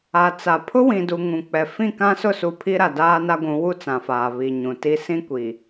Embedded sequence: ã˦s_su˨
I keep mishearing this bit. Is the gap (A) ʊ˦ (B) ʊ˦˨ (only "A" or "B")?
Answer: B